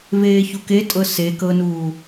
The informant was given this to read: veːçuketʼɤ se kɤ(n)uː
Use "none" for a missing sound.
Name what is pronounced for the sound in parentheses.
n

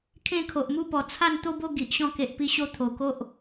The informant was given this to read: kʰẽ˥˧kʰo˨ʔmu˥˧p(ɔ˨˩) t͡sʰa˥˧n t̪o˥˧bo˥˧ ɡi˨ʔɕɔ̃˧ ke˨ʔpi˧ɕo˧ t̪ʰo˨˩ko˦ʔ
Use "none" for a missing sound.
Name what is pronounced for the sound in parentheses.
ɔ˨˩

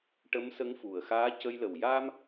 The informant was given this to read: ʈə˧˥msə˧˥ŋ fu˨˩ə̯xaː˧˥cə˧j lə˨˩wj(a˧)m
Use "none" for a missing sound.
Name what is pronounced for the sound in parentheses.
a˧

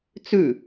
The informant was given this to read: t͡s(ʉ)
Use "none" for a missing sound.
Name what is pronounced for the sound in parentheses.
ʉ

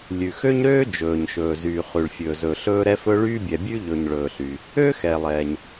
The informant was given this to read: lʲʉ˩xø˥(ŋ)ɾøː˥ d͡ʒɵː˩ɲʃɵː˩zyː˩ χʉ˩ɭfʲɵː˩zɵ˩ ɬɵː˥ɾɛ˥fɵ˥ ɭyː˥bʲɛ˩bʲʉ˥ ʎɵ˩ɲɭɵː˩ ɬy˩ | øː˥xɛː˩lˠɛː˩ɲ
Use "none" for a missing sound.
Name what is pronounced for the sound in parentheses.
ɲ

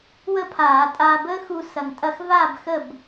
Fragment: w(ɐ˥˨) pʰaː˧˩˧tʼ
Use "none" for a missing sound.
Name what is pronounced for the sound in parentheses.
ə˥˨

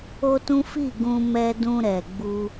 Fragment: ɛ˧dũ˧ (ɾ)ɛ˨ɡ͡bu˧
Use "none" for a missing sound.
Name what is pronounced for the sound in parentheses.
ɾ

